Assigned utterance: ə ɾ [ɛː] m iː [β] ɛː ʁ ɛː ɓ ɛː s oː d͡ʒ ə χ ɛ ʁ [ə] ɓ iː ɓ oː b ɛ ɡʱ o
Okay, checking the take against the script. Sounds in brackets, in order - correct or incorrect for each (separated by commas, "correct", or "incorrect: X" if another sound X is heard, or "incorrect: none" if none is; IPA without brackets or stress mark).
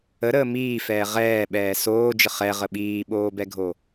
incorrect: əː, incorrect: f, correct